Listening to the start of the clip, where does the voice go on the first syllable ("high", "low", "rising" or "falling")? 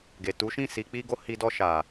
low